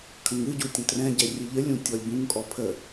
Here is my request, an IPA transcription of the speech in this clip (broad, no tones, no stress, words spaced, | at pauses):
kʰə̃ŋɨɟu tʲə̃trɛ̃ɟɛ rʲɨʎəlʲũ tʲɔlʲbũŋkʼɔ pʰə